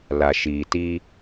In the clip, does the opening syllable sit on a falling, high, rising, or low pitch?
low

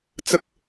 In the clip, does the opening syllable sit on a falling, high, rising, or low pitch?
high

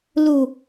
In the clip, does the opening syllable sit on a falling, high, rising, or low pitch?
low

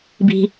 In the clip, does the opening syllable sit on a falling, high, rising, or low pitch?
low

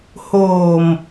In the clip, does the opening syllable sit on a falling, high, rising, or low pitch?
low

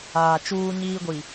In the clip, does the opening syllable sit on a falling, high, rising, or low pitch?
low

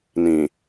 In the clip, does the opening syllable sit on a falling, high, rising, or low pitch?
low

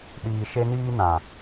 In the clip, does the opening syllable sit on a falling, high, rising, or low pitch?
low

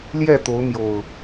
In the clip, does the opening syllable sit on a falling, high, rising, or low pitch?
falling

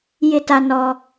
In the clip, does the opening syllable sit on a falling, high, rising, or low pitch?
high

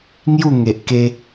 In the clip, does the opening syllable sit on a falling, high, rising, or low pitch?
falling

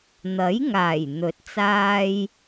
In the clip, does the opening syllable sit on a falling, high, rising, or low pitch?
rising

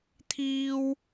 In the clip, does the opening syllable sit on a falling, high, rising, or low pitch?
high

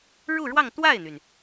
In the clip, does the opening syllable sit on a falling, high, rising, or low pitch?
falling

